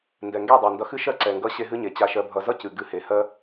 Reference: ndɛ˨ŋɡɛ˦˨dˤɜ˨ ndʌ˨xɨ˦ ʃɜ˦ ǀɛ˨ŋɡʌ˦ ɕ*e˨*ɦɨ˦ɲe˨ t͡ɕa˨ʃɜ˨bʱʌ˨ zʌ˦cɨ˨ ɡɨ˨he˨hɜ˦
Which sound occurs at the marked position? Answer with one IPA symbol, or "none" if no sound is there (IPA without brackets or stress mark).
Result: e˦